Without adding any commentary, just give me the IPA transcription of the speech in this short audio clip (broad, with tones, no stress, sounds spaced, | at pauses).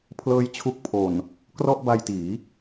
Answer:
pʰ l ɤː˦˥ j t͡ɕʰ u˦˥ k̚ pʰ o˨˩ n | k r ɔ˥˩ ʔ b a˧ j t iː˩˦